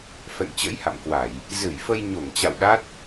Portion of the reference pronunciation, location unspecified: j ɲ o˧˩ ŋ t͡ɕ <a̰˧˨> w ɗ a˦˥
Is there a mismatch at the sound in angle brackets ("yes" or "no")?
no